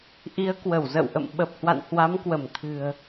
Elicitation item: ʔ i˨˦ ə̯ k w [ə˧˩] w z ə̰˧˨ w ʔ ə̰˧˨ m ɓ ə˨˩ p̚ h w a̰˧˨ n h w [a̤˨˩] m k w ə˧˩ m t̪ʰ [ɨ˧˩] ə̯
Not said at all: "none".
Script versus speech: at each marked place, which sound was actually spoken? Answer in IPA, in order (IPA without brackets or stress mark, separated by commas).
ə˧˩, a˨˦, ɨ̤˨˩